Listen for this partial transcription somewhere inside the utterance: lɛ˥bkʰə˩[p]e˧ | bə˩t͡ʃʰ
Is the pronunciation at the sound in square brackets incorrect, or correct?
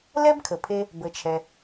incorrect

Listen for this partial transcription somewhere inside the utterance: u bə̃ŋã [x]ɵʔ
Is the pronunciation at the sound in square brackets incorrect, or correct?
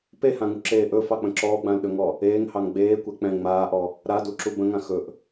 correct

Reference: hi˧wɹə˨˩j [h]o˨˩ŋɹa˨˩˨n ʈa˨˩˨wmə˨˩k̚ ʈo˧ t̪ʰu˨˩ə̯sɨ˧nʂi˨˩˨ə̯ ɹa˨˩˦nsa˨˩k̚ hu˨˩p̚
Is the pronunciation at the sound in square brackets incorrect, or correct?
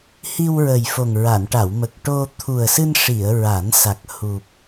incorrect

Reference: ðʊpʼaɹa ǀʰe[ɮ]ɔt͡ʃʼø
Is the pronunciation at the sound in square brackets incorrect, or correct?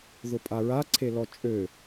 incorrect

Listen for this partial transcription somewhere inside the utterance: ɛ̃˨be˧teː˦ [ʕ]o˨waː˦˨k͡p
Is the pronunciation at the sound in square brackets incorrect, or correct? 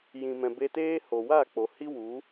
incorrect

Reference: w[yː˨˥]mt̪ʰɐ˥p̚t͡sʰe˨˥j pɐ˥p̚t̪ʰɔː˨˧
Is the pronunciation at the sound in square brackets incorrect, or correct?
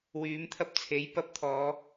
correct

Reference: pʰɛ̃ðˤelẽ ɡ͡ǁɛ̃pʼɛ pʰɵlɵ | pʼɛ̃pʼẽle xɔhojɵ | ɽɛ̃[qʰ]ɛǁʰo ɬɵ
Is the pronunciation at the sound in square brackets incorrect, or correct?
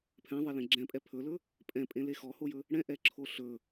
incorrect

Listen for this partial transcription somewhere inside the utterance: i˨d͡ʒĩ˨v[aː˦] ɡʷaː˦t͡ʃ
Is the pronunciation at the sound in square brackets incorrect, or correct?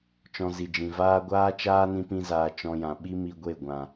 correct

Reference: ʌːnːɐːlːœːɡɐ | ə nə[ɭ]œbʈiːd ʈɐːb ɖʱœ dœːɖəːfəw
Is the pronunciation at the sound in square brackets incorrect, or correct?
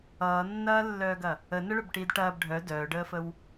correct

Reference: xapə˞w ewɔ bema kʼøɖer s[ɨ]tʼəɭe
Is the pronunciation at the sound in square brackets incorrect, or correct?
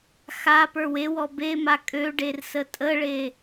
incorrect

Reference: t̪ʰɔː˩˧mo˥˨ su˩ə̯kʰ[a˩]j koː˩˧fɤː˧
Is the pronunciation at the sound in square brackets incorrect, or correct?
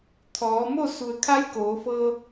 incorrect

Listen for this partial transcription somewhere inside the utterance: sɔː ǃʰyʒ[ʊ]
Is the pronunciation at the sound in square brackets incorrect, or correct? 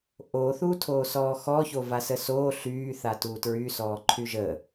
incorrect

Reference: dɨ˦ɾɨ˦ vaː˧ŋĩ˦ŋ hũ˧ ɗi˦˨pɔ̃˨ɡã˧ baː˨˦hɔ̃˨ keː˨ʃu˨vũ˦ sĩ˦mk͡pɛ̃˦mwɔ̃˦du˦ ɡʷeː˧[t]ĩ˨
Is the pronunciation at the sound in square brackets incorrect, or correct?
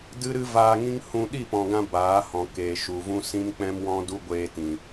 correct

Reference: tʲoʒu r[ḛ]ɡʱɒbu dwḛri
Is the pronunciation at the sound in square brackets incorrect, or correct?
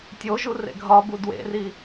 correct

